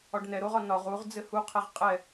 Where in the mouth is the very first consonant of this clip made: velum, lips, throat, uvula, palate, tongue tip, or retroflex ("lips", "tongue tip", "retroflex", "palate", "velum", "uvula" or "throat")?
retroflex